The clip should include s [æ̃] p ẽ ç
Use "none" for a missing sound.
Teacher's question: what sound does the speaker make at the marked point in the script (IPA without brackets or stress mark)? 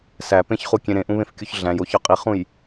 æ